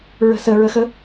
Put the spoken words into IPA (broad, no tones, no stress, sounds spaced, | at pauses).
ɹ ə̤ s ə ɹ ə x ə